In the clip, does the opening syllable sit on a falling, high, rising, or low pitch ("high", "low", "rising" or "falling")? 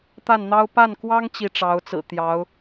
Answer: falling